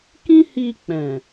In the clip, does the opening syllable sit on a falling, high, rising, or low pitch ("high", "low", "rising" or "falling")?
high